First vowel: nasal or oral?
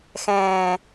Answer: nasal